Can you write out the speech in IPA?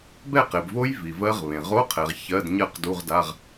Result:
b ɛ˥˨ q e˨ b v o˦˥ j v i˨ v ɜ˦˥ ʁ β ẽ˨ ʁ o˧˥˧ qʰ ɛ˨ ʁ ç ɜ˧˥˧ d ɲ ɜ˥˨ q d u˧˥˧ ʁ d a˧˥˧ ʁ

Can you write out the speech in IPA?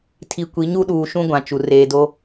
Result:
tʰ i˨ kʷ i˨˦ ɲ u˦ ɗ uː˨ ʃ ũ˦ ɡʷ ã˨ t͡ʃ u˨ r eː˨ d o˦

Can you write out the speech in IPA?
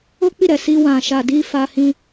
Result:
o˦ k͡p i˦˨ ɾ ɛ˨ s i˧ w ã˨ ʃ a˨ d i˧ f a˧ h ĩ˧

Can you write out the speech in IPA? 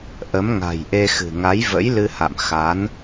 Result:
ʔ ə˨˦ m ŋ a̤˨˩ j ʔ e˧ x ɨ̤˨˩ ŋ a˨˦ j v ə̰˧˥ j l ɨ˧ h a̰˧˨ m x a˨˦ n

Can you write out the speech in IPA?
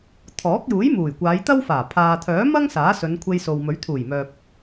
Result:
t̪ʰ ɔː˨˥ k̚ j uː˨˥ j m uː˨˩ j kʷ aː˨˧ j t̪ ɐ˥ w f aː˨˩ pʰ aː˨ t̪ʰ œː˨˥ m ɐ˥ ŋ s aː˨˥ s ɵ˨˧ n kʷʰ e˧ j s o˨ w m ɵ˨˥ ɥ t̪ʰ uː˨˩ j m œː˨ p̚

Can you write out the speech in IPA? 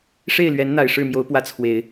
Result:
ʂ e˥˩ ɪ̯ l ɥ ɛ˧˥ n n̪ a˨˩ ɪ̯ ʂ ɻ̩˥˩ m j o˧˥ ʊ̯ p w ä˥˩ t͡sʰ w e˨˩˦ ɪ̯

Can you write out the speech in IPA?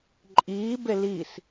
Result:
ǃʼ iː b e l i s

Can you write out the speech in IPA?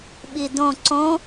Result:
ɓ i d õ ǀ õ

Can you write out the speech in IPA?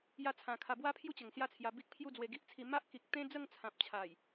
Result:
j a˥˧ t͡sʰ ã˧ kʰ a˧ b w a˦ pʰ j u˥˧ t͡ɕ ə˨˩ ŋ s j a˥˧ t͡sʰ j a˧ b i˦ k̚ pʰ j u˥˧ d͡z w e˧ ɡ i˦ ʔ t͡sʰ i˧ m a˦ ʔ k i˨ k̚ t̪ ẽ˦ d͡z ə˥˧ ŋ t͡sʰ ã˨ p̚ t͡ɕʰ a˨˩ j

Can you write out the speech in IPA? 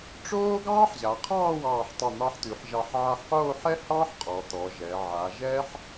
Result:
ʈ͡ʂ oː˥ ɡ ɑː˥ ħ ʑ a˩˧ qʰ ɑː˥˧ w ɑː˧˩ ħ tˤ ɛ˧˩ n̪ ɑ˧ ħ t̪ ʉ˩˧ ħ ʒ ɑ˧˩ ħ ʕ a˧ ħ q oː˥˧ ħ ɛ˥ h ɑ˥ ħ qʼ ɔ˩˧ t̪ ɔ˩˧ ʒ ɛ˩˧ ʕ a˩˧ ʒ ɛ˥ ħ

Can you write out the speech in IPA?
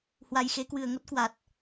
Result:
h w a˨˩ j x e˨˦ k w ɨ˨˩ ə̯ ŋ o˦˥ t̚ k w a˨˩ t̚

